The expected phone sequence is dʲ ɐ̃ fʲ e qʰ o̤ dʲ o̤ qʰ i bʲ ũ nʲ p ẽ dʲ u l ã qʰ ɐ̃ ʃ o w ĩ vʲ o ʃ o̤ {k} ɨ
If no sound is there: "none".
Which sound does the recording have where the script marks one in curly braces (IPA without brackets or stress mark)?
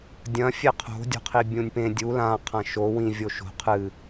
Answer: qʰ